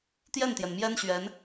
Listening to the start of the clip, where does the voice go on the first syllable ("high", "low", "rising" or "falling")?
falling